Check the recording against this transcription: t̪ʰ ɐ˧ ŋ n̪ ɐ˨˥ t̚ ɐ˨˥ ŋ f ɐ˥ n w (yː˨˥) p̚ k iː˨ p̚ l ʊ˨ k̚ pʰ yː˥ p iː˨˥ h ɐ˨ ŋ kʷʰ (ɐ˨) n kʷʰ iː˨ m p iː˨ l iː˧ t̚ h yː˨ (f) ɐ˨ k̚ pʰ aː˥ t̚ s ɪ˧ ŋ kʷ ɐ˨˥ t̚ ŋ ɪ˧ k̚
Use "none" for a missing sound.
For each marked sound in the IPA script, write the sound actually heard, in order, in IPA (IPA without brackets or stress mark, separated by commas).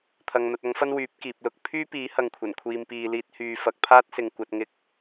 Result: yː˨˥, ɐ˨˩, f